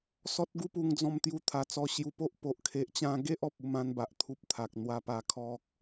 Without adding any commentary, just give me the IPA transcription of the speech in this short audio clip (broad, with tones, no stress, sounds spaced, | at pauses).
s ɔ˦ t̚ ɡ u˦ p u˧ ŋ d͡z ɔ̃˧ m t̪ j u˧ t̪ʰ a˨˩ t͡s ɔ˧ ɕ j u˧ p o˦ ʔ p o˨ ʔ kʰ e˨ ʔ t͡ɕ ã˧ ɡ e˦ ʔ ɔ˨ p̚ u˥˧ m ã˦ n b a˨ ʔ t̪ʰ u˦ p̚ t̪ʰ a˨ k̚ n̪ w a˧ p a˧ kʰ ɔ˦ k̚